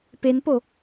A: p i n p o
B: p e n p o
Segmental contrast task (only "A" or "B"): B